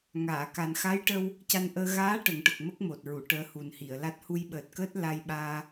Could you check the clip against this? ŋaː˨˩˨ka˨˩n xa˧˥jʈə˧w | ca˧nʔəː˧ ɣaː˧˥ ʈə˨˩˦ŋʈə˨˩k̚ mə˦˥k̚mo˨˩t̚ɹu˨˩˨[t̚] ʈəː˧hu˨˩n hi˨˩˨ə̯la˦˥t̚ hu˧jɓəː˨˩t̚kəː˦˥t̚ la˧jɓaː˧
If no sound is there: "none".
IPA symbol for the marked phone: none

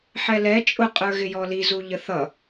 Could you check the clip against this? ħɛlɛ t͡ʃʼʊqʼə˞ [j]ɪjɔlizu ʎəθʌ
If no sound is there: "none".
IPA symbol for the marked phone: ɣ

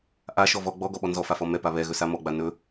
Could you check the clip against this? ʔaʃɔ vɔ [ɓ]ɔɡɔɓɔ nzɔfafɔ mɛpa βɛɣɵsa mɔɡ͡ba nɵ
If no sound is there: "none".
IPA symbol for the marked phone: ɡ͡b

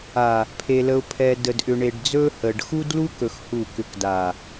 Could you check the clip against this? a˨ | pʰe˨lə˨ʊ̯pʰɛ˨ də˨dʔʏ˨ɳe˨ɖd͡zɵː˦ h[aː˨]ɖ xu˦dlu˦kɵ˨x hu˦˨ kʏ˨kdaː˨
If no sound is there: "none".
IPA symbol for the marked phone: əː˨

